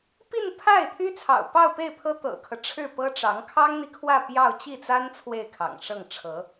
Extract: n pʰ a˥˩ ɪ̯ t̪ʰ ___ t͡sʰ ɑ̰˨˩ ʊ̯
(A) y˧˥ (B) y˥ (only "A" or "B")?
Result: B